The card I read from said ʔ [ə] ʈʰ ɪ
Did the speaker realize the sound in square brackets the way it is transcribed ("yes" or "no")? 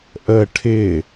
yes